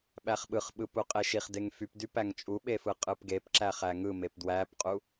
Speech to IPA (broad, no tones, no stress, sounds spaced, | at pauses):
ɓ æ χ ɓ ɯ χ ɓ ɯ p u qʼ e ʃ i χ d e ŋ f y p d y p æ ŋ t͡ʃʼ u ɓ e f ɯ qʼ ɯ p ɡ e p ǁ æ χ æ ŋ ɯ m e p d w æ p qʼ u